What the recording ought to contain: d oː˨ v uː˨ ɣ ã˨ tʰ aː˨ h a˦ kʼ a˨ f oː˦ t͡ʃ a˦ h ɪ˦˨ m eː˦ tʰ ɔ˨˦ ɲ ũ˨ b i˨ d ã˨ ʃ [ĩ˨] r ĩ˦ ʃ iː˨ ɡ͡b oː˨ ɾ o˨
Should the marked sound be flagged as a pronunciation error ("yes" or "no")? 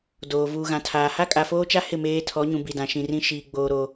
no